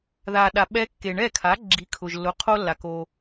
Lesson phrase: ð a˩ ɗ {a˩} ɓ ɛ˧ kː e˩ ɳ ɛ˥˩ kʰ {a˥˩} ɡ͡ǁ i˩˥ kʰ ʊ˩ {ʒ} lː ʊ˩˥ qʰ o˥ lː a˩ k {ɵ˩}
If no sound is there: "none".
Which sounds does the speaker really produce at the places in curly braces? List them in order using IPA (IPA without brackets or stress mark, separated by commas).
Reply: a˩, a˩˥, ʒ, o˩